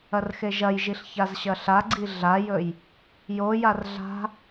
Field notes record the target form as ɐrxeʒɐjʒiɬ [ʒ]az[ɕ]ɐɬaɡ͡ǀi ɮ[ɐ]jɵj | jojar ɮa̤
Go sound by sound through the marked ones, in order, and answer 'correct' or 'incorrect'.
incorrect, correct, incorrect

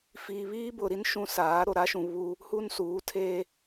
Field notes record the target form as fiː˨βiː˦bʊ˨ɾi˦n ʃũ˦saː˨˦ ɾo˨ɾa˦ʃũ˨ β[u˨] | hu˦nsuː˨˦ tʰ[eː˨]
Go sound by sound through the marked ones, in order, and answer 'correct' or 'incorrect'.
incorrect, incorrect

